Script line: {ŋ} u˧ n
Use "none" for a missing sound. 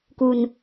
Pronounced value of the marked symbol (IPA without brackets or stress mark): k